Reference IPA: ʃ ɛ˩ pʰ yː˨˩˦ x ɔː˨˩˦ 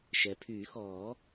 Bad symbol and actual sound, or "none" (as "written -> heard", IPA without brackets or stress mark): none